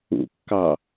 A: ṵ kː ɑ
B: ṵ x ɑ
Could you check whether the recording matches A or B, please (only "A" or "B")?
A